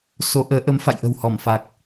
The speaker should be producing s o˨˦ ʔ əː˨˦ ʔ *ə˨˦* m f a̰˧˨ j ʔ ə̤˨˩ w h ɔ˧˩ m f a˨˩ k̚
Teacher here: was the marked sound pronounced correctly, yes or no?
yes